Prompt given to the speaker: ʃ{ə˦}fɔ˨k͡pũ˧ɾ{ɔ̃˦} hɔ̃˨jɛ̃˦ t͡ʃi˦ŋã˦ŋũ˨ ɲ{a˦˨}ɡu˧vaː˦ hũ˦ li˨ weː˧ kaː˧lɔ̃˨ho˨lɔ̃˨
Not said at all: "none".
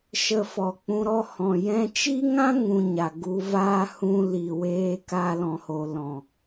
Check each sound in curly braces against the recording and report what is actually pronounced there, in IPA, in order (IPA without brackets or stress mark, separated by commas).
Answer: ə˧, ɔ˦, a˨